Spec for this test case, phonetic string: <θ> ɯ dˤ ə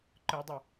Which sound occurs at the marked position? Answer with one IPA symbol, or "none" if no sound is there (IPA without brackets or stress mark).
ǃ